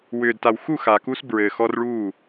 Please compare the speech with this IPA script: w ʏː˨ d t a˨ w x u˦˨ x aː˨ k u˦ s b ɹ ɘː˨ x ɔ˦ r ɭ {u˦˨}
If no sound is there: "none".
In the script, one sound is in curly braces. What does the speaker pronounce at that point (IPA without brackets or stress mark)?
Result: u˦˨